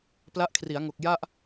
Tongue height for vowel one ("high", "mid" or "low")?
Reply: low